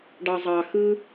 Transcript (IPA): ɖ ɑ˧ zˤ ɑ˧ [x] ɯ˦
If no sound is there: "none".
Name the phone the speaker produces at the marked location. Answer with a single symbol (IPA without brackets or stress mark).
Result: x